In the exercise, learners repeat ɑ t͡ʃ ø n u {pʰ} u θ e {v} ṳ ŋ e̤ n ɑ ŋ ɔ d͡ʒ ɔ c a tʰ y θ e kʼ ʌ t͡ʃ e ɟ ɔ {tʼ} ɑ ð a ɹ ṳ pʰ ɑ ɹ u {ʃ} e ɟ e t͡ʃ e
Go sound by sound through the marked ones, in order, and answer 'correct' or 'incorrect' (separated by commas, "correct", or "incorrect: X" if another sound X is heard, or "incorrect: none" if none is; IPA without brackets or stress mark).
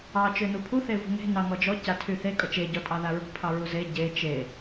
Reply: correct, correct, correct, incorrect: z